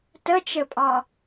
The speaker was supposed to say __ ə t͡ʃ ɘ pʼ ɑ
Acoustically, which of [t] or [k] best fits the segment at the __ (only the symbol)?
t